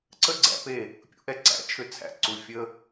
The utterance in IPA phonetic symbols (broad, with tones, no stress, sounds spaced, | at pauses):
ǀʰ ə˦ ɡ͡ǀ æ̰˧ p e˦˨ | pʲ ṵ˨ ʔ ɛ˧ ǀ æ̰˨ t͡ʃʰ ʏ˧ t͡sʰ æ̰˧ ǀ u˧ fʲ ə˦